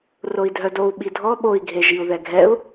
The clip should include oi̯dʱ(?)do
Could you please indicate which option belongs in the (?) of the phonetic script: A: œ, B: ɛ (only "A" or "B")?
A